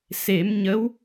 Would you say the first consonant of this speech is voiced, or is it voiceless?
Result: voiceless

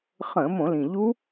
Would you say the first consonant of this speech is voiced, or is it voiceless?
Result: voiceless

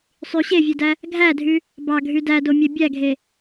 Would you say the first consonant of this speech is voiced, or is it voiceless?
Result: voiceless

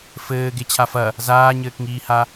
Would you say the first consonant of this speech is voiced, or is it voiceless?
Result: voiceless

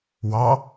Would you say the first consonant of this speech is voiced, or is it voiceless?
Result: voiced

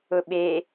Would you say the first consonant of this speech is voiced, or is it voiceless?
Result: voiced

